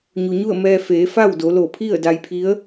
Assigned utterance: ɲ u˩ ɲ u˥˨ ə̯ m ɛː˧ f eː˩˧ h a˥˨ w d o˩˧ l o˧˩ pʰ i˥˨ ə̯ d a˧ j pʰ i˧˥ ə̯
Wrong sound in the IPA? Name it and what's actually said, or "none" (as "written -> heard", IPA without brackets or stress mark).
h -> f